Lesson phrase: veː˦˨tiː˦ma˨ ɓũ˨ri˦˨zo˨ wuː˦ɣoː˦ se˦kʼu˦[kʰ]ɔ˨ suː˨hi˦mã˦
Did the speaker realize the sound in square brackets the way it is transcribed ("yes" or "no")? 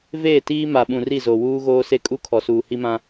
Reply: yes